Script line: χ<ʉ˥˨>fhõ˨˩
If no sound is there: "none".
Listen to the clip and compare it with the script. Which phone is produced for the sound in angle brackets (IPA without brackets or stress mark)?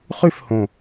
ʉ˥˨